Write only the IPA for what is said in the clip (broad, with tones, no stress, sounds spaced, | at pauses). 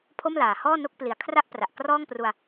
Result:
pʰ o˥˩ m l aː˨˩ h ɔː˥˩ n o˥˩ k̚ p l i˨˩ a̯ kʰ r a˥˩ ʔ p r a˨˩ ʔ k r ɔː˥˩ ŋ p r u˧ a̯